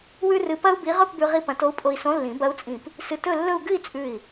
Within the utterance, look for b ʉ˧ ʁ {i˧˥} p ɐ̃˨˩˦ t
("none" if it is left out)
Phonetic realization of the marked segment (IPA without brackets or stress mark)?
i˧